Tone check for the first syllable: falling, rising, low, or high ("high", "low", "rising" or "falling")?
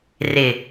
low